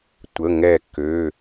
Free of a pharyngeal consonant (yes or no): yes